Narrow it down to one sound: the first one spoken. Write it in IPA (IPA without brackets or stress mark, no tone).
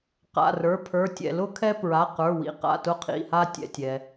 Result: q